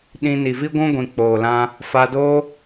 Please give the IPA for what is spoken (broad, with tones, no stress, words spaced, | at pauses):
ɗĩ˧ ni˨vi˦ɡʷũ˦ɡʷĩ˨ k͡poː˨lã˧ | fa˧doː˦